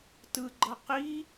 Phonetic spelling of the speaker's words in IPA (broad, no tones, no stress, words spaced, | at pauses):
tɯɡ͡ǃʌ qi